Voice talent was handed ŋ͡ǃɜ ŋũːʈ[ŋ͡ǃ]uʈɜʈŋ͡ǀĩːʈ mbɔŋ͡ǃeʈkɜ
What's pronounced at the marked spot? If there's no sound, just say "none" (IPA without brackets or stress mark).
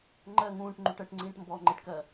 ŋ͡ǃ